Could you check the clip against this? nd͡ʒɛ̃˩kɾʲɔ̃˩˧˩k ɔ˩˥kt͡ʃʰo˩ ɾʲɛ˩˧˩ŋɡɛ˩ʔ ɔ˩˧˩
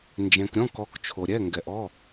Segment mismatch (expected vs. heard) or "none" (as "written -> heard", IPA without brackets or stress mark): none